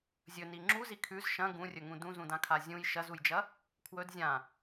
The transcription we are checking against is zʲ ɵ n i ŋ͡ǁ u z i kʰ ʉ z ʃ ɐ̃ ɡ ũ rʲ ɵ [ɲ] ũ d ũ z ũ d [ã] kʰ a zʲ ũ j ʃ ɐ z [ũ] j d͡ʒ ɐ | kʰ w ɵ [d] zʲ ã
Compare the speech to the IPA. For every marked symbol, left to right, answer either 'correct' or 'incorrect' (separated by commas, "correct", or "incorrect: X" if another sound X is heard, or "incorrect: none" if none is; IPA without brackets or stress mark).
incorrect: ŋ, correct, incorrect: u, correct